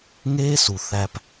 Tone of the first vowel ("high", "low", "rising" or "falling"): high